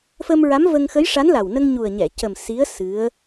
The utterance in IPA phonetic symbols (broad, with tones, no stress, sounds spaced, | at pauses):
f ə˧ m ɹ a˧˥ m v ə˧ ŋ x ə˧˥ j ʂ a˧˥ n l a˨˩ w n ə˧ ŋ ɲ u˨˩ ə̯ ɲ ɛ˨˩˨ c ə˨˩ m s i˧˥ ə̯ s ɨ˧˥ ə̯